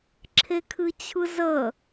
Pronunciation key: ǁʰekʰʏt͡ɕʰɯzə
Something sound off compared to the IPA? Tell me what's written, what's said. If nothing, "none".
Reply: ʏ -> ɨ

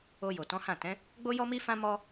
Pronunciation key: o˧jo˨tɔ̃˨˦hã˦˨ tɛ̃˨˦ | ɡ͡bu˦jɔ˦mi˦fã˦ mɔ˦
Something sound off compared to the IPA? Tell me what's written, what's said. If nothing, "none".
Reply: u˦ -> o˦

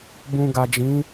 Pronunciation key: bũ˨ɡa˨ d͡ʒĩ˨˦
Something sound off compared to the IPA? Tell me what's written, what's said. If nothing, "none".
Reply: none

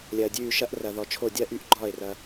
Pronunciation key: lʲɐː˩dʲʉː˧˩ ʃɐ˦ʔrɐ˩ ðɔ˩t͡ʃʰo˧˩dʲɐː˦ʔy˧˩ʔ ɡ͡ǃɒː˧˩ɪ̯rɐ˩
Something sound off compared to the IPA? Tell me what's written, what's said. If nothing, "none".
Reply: none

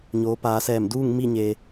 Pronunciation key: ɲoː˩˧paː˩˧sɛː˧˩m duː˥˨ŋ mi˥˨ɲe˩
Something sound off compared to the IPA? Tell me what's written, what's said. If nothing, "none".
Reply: none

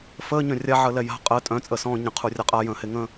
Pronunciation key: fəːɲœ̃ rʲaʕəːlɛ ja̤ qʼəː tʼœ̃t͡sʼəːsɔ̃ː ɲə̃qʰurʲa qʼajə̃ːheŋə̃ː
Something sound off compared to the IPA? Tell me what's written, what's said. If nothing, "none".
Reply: none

